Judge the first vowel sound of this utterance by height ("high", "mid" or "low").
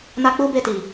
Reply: low